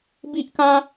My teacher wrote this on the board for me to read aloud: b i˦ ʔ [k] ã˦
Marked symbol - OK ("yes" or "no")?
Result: yes